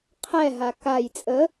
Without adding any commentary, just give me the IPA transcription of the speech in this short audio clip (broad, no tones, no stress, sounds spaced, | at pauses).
qʰ ɛ ɦ a k a j t͡sʼ ə